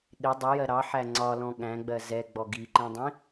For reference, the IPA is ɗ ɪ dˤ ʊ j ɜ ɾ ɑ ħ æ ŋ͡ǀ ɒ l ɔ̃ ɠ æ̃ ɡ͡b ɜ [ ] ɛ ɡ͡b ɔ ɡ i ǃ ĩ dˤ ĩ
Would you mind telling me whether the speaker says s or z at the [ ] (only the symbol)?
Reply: z